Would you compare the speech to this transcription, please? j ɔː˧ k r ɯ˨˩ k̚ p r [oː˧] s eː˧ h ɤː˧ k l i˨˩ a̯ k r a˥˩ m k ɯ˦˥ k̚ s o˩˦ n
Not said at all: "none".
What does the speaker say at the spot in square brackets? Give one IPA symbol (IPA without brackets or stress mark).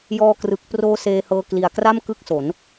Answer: oː˦˥